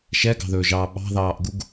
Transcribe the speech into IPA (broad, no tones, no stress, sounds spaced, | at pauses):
ʃ ɛ ɡ ɑ̤ ð ɵː ʒ ɑː ɓ ɑ̤ ð ɑː ʔ ɡ u ɡ